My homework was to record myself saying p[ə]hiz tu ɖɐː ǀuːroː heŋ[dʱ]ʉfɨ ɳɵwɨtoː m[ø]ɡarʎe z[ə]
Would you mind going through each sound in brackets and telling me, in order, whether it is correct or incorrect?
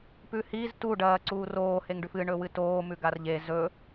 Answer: incorrect, incorrect, incorrect, incorrect

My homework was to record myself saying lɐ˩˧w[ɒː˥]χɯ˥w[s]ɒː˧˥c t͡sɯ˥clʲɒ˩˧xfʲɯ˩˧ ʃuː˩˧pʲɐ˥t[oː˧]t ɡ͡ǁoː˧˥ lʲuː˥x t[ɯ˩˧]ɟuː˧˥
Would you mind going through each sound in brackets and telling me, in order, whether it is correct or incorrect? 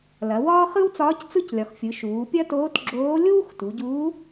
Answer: correct, incorrect, incorrect, incorrect

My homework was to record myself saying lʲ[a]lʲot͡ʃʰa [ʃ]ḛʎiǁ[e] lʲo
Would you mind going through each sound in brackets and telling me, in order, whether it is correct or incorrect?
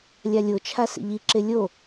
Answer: correct, incorrect, correct

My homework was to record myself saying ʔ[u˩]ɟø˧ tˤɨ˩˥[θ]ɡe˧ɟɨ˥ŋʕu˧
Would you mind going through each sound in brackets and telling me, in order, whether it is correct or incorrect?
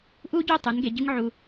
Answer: incorrect, incorrect

